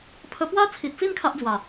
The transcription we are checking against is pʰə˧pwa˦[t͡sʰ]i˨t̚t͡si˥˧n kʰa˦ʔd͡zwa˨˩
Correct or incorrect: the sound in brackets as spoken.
correct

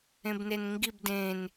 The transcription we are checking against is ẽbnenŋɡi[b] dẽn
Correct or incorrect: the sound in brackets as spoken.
correct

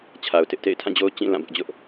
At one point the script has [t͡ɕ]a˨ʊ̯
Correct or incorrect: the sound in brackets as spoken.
incorrect: t͡ɕʰ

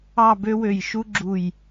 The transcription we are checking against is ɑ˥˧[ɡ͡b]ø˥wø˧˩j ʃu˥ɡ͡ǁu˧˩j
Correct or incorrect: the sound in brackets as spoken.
incorrect: b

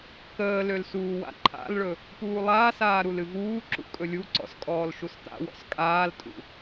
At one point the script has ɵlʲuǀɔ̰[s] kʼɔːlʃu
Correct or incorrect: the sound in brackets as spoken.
correct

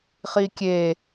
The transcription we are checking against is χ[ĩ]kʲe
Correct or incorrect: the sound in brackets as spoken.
incorrect: i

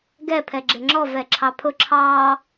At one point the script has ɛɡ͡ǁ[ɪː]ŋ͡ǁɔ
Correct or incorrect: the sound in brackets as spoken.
incorrect: ɪ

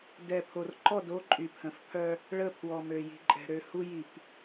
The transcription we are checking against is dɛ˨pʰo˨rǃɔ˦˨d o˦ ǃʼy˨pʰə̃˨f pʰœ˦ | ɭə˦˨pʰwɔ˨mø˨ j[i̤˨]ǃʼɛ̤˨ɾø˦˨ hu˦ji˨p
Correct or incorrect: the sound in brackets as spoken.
correct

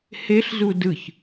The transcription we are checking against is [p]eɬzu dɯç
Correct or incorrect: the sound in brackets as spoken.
incorrect: h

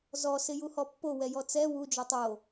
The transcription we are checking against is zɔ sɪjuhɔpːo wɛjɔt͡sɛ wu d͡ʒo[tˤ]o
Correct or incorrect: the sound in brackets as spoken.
correct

